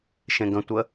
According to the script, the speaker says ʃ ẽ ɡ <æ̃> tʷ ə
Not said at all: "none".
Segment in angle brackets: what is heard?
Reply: ə̃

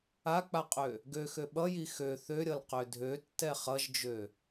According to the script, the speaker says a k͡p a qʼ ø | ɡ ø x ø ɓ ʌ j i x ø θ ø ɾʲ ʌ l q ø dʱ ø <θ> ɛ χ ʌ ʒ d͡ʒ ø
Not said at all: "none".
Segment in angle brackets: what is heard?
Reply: tː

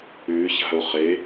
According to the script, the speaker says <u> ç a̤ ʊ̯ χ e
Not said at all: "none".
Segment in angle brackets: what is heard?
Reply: ʉ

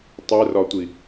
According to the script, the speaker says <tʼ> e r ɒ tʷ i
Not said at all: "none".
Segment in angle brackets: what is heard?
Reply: tˤ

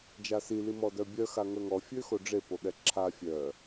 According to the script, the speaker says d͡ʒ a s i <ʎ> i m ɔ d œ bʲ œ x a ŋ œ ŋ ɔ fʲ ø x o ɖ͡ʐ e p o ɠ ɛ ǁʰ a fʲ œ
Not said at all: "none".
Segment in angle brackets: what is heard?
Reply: l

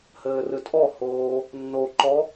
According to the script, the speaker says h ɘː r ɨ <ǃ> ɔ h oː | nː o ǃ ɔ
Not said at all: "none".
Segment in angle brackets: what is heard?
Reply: tʼ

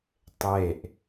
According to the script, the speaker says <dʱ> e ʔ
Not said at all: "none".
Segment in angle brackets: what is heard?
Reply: tˤ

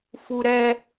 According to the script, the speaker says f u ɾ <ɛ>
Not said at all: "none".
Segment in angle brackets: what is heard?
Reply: ɛ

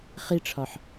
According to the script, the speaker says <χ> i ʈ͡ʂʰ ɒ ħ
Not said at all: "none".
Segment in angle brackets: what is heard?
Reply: χ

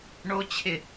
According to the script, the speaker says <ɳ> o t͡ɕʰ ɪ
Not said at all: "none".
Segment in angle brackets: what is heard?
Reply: ɳ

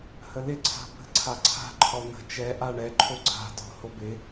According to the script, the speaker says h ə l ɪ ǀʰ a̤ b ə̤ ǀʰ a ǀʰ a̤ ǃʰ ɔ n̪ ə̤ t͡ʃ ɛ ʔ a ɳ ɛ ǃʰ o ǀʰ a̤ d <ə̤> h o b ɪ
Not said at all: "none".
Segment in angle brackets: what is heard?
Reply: ɔ̤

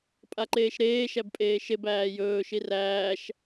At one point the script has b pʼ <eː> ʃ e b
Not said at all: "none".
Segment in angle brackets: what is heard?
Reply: eː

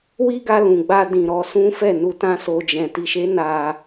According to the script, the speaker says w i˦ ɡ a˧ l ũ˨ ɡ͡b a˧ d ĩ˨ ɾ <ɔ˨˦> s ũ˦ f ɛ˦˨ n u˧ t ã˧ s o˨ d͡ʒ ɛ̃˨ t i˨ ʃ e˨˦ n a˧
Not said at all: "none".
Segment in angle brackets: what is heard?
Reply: ɔ˨˦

